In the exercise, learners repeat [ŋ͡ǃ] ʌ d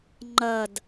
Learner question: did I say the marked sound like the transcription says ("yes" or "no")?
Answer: yes